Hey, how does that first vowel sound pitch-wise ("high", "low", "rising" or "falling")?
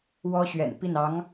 high